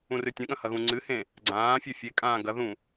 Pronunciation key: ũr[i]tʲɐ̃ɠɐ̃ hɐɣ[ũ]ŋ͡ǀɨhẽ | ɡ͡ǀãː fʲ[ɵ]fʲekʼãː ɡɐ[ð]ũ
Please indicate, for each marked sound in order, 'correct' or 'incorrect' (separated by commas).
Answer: incorrect, correct, correct, correct